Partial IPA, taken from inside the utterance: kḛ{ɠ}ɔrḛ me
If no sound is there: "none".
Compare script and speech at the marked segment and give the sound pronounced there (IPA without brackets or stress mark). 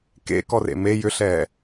k